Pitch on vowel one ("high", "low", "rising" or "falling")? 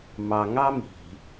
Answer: low